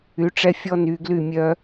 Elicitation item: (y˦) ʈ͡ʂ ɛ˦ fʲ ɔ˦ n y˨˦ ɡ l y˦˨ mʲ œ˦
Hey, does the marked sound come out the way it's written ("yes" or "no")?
no